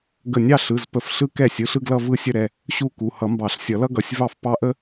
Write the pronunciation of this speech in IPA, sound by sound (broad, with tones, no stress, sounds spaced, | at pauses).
ɡ ə˧˩ nʲ ɑ˥˧ ɬ ɯ˩˧˩ z p ə˧˩ f ɬ ɯ˥ k ɛ˥˩ sʲ ɯ˩˧˩ ɬ ɯ˥˧ ɡ l ʌ˥˧ v ɯ˥˧ sʲ ə˥˧ ɾ ɛ˩˧˩ | ɕ u˥˧ k u˩˧˩ h ʌ˨˩˦ m b ɑ˨˩˦ ɬ sʲ ʌ˨˩˦ l ʌ˥ ɡ ʌ˩˧˩ sʲ v ɑ˥˩ f p ɑ˥ ʔ ə˥